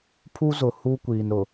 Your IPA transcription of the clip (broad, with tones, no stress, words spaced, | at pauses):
pʰu˦zʊ˨ hu˦kʷiː˨nɾʊ˨